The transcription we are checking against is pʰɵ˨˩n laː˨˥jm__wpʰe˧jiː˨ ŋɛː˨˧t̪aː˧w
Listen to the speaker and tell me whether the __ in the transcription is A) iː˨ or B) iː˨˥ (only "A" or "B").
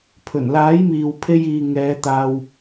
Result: A